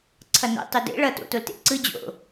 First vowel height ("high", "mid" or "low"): mid